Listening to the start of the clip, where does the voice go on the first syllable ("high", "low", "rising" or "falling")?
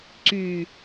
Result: low